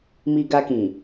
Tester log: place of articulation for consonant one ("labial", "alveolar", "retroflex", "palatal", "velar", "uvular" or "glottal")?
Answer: labial